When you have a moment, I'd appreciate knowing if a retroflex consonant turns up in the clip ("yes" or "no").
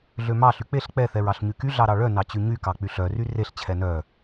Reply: yes